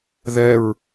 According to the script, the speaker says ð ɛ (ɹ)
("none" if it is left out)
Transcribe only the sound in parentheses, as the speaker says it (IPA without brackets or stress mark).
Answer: ɹ